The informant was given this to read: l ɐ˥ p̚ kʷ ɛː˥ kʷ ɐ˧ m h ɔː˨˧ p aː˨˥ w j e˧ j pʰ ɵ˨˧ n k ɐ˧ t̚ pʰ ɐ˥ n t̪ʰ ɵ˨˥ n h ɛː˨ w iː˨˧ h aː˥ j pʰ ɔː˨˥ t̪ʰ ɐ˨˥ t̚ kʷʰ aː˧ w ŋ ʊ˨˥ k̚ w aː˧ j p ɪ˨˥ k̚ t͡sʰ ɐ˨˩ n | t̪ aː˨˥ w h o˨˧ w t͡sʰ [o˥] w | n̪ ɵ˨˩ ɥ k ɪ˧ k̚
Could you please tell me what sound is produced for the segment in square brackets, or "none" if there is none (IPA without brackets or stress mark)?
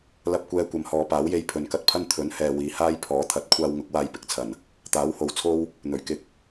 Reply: o˥